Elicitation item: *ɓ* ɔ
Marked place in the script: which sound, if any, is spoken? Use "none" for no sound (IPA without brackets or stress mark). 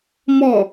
m